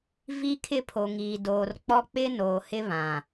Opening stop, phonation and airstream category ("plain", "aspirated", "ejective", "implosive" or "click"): aspirated